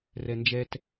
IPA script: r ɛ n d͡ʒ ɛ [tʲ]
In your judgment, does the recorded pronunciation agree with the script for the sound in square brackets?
no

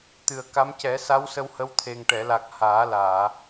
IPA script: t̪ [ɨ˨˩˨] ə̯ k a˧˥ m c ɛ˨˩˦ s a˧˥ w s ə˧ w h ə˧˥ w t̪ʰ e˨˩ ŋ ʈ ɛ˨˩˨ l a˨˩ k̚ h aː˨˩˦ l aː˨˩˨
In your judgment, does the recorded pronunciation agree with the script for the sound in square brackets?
no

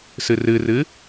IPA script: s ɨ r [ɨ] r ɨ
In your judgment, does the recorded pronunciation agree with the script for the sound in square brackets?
yes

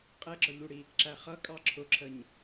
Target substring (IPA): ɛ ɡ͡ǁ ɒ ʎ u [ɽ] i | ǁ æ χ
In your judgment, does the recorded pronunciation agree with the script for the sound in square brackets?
yes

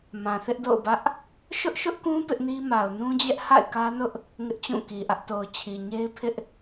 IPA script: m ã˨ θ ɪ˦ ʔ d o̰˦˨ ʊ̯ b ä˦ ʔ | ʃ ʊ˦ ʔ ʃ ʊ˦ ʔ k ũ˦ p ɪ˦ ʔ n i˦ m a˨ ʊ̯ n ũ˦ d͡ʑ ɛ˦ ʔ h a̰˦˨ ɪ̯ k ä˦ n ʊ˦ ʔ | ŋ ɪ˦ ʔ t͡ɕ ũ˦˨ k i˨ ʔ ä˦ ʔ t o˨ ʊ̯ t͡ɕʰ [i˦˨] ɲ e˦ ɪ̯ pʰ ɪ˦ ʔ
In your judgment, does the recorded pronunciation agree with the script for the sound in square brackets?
no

